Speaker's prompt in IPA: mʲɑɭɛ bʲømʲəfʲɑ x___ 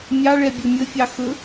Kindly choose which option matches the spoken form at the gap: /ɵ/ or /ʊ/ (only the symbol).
ɵ